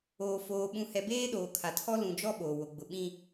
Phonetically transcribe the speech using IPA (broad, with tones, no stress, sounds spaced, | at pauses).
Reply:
oː˨ f oː˨ ɓ ũ˨ h ɛ˨ b eː˦ ɗ oː˨ kʰ a˨ tʰ ɔ˦ l ũ˨ d͡ʒ ɔ˦ ɓ oː˨ w o˨ ɡ͡b ʊ˨ ɓ ĩ˦